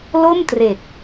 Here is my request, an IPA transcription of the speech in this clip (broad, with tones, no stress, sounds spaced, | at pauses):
l o˥˩ m t r e˨˩ k̚